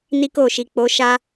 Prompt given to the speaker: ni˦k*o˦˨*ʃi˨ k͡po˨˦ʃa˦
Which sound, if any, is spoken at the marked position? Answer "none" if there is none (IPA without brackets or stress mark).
o˦˨